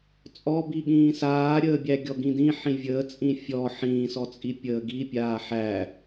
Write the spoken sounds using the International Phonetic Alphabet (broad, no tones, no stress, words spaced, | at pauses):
t͡sʼɔbi ɠĩːsaːɾʲəː bʲæɡʲɔɡĩdĩ ħĩvʲəː t͡sʼĩfʲɔ ħĩːsɔt͡sʼi pʲəːɡipʲaː ħæ